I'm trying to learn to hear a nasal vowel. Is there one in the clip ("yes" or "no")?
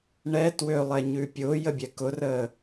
no